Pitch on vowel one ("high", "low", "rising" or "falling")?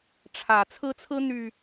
rising